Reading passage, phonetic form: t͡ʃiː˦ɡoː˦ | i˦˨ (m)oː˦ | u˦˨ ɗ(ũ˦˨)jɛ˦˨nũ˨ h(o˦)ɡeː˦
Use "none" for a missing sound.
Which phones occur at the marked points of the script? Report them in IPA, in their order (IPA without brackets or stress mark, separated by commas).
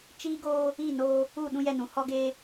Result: n, ũ˦, ɔ˦